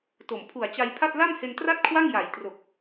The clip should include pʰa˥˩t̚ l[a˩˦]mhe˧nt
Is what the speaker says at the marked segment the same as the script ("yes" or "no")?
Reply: no